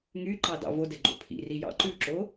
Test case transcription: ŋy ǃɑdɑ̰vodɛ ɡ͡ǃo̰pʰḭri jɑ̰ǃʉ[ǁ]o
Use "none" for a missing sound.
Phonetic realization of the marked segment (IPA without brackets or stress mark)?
ǁ